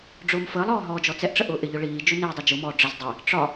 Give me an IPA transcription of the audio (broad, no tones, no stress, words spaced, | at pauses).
ɖ͡ʐʊːmfəːlˠɔː ɦɔːd͡ʒɔt͡sɛʔʈ͡ʂə ʔʊːʔɪʎʊ ɭiː d͡ʒʊnɪːdˤʊ d͡ʒʊmɔː ɖ͡ʐəz dˤɪ | ʈ͡ʂɒ